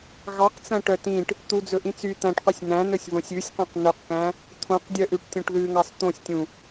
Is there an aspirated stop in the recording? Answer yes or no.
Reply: yes